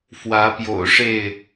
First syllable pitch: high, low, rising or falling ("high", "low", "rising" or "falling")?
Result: rising